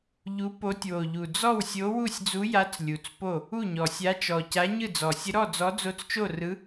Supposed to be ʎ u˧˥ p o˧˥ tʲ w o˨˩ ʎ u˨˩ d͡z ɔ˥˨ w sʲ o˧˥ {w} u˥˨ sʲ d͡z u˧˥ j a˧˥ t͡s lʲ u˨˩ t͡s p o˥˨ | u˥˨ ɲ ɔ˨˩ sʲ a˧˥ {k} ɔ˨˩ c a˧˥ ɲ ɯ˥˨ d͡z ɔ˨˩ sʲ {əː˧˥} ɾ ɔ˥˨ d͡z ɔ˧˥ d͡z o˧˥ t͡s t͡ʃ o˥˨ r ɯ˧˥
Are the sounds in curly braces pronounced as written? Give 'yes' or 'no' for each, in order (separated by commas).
yes, no, no